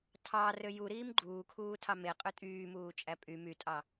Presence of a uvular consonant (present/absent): present